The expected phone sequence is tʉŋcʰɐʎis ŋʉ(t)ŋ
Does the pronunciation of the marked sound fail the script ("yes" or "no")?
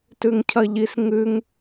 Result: yes